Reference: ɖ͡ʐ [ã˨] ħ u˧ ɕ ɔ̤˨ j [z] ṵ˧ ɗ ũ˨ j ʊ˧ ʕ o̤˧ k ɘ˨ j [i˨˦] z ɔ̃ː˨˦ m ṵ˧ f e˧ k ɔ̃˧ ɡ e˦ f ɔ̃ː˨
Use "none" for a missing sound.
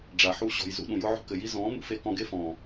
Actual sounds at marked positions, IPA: a˨, z, i˧

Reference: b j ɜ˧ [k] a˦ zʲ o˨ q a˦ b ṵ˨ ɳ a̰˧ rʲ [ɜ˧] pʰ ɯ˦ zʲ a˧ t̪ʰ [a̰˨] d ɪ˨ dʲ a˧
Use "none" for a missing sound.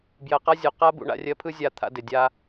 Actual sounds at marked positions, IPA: q, ɜ˧, a̰˧

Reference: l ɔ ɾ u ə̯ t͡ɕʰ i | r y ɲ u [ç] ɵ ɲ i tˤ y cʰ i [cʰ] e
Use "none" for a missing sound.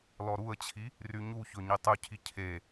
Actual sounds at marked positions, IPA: ç, cʰ

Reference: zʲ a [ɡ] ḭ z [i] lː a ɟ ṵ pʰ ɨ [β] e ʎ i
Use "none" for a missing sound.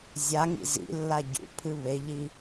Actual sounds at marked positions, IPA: ŋ, ḭ, β

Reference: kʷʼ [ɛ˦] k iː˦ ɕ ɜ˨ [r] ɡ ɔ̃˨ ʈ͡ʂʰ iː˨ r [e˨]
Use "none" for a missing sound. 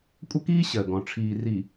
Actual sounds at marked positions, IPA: ə˦, none, i˨

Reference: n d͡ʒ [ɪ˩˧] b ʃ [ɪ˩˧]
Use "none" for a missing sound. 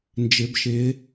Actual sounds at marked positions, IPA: ɪ˩˧, ɪ˩˧

